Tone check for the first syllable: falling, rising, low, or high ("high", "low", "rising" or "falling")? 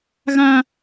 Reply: high